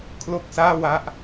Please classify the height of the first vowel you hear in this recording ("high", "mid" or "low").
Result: mid